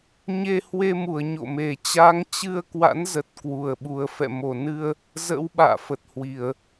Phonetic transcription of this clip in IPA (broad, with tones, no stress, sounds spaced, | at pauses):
ɲ e˧ h w e˧ m u˧˩ ə̯ ɲ o̰˧˨ m e˨˩ t͡ɕ a˨˦ ŋ t͡ɕ ɨ˧ ə̯ k w a̰˧˥ n z ə˨˩ t̚ k w u˨˩ ə̯ ɓ u˨˩ ə̯ f ɛ̰˧˨ m o˧˩ n ɨ˧ ə̯ | z ə̰˧˥ w ɓ a̰ː˧˨ f ə˨˩ t̚ h w i˧˩˨ ə̯